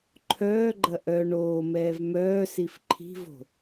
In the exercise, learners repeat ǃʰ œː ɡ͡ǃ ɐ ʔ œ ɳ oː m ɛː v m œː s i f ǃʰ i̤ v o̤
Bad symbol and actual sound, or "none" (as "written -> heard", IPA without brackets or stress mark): none